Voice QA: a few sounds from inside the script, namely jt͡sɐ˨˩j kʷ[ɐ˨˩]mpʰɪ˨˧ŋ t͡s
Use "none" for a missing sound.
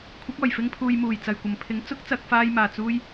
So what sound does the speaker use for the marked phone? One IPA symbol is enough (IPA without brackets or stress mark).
ɐ˨˩